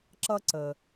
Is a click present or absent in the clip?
present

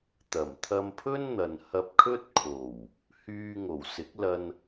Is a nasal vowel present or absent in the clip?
absent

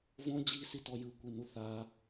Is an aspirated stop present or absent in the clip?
absent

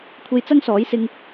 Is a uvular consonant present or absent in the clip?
absent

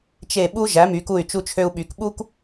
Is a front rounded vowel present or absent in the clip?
present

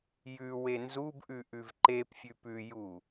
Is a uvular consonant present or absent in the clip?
absent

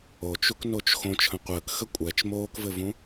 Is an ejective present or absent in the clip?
present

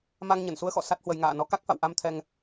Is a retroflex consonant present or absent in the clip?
absent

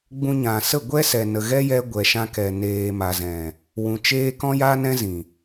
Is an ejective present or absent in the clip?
absent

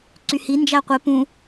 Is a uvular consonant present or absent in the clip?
present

